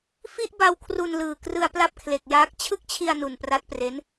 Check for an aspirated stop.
present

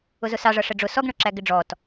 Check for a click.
present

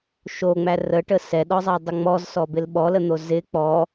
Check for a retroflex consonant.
present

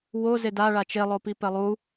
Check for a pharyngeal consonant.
absent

